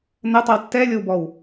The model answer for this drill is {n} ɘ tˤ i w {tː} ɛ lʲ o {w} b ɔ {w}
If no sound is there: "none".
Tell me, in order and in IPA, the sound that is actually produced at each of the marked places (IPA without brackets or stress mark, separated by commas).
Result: n, tː, w, w